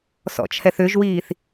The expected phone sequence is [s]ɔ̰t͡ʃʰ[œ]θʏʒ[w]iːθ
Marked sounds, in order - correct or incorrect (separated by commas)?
correct, incorrect, correct